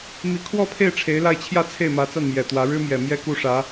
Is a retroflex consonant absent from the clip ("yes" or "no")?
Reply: no